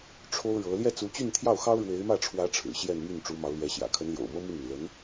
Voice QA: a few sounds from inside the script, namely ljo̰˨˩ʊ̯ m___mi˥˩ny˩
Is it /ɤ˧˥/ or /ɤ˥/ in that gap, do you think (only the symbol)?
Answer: ɤ˥